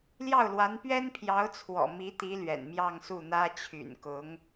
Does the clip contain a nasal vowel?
no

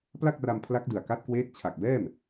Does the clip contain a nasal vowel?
no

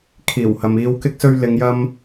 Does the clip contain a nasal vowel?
no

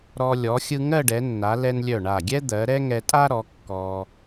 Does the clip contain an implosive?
no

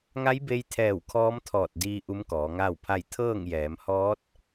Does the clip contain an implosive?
no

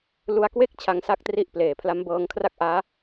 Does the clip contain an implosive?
no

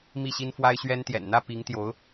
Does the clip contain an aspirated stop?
no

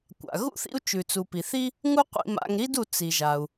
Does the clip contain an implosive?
no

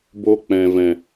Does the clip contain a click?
no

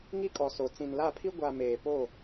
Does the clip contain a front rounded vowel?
no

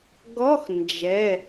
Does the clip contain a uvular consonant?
no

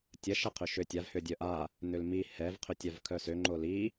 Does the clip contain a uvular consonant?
yes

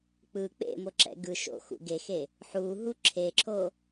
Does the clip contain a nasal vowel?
no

